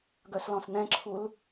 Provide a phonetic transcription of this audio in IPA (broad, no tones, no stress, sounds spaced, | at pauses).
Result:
ɡ œ s l ɔ̃ s n̪ ɛ̃ ǁʰ u l